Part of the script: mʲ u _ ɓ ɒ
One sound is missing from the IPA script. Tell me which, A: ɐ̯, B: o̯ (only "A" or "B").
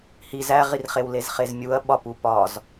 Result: A